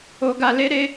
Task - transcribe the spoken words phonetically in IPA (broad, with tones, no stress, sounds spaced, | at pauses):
o˧ ɡ a˧ l e˦ ɾ e˦